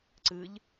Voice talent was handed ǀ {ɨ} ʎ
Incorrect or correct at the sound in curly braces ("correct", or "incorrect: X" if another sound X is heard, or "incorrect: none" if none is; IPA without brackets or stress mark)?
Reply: correct